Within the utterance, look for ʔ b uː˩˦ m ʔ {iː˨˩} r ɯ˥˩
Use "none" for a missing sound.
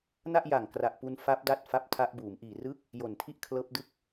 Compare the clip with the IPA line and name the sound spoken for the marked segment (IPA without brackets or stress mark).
iː˨˩